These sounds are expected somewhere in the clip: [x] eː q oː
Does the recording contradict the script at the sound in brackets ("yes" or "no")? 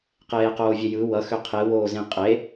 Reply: yes